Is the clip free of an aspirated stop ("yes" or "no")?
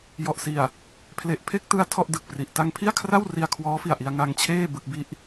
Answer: no